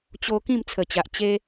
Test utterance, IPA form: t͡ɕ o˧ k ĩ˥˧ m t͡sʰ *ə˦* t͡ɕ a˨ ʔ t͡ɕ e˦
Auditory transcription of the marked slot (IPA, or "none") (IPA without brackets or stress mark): ə˨˩